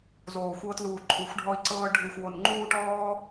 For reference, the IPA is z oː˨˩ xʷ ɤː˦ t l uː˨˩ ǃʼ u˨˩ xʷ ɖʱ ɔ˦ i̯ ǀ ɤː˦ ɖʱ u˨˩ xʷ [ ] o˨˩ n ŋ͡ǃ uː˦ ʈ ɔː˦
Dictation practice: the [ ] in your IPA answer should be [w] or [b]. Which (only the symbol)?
w